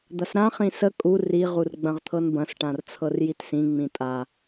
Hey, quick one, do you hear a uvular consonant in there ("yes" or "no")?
yes